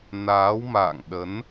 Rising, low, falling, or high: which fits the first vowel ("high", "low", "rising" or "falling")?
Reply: rising